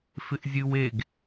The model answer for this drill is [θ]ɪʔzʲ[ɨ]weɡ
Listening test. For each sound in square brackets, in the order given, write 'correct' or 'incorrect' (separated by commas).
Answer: incorrect, correct